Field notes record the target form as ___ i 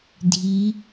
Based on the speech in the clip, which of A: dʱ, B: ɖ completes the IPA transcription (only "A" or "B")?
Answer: A